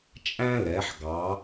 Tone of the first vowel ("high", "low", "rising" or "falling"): high